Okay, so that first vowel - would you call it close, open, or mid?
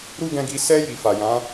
close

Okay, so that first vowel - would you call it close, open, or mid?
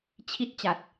close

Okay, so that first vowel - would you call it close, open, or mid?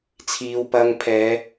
close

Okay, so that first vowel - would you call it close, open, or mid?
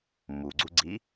close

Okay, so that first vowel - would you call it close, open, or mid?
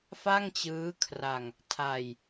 open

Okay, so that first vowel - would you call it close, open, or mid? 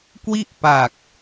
close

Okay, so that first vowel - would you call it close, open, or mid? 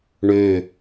mid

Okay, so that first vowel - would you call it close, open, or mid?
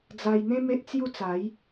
open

